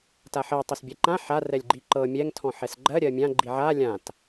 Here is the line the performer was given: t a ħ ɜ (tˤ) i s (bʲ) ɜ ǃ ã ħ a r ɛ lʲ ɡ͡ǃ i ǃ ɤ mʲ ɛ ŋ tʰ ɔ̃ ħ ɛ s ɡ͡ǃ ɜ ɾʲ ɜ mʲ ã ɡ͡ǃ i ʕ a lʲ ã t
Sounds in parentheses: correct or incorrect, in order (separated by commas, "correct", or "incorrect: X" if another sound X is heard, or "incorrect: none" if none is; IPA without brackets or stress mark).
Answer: correct, correct